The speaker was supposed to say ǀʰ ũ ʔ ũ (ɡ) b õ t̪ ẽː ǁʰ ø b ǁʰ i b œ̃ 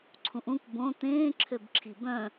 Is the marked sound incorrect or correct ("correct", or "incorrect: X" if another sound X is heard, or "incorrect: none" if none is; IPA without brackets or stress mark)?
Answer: incorrect: k